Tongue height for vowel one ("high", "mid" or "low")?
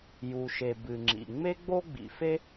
high